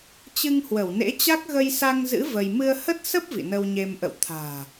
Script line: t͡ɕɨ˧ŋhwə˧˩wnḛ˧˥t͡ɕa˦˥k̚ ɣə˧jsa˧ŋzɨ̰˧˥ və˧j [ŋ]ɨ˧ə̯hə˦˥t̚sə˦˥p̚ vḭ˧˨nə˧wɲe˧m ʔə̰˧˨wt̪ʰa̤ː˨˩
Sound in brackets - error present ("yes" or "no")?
yes